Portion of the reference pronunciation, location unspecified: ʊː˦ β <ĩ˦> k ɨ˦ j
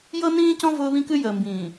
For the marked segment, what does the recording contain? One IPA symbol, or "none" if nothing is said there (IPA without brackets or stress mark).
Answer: ĩ˦